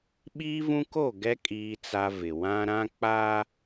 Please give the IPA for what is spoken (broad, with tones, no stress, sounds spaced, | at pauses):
ɓ iː˦ v ũ˦ k o˦˨ ɡ ɛ˦ kʼ iː˦ t͡s a˦ v ɪ˨ w ã˦ ɾ ã˦ k͡p aː˦